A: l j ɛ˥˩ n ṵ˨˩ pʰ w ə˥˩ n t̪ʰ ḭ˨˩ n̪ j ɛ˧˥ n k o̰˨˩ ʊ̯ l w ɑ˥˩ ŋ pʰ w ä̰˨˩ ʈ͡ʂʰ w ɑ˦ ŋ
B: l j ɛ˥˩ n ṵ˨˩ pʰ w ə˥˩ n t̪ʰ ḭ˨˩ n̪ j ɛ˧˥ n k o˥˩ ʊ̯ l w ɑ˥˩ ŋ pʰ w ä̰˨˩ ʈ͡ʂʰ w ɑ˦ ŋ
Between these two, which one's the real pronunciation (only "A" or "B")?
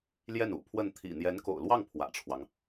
A